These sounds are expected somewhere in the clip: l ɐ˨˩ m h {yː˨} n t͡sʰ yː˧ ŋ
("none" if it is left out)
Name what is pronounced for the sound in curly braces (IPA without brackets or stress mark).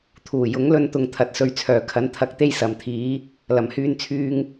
yː˧